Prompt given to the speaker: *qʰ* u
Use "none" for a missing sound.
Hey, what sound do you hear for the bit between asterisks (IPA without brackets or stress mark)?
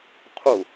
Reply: qʰ